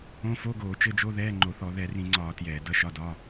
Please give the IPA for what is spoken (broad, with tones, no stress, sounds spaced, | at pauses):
õ˧˥˧ f o˧˥˧ ɡ oː˧˩˧ t͡ʃ ɘ˧˥˧ d͡ʒ o˧˥˧ ð ɛː˧˥˧ ŋ͡ǃ o˧˩˧ θ ɔ˧˩˧ ð ɛ˧˩˧ r ĩ˧˩˧ ŋ͡ǀ ɒː˧˩˧ t j ɛː˧˩˧ d ʌ˧˥˧ ʃ ɒ˧˥˧ d ɒ˧˥˧